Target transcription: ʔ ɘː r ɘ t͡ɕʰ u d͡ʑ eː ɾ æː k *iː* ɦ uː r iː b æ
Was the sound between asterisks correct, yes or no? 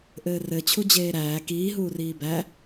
yes